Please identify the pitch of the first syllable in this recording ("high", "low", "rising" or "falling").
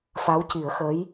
rising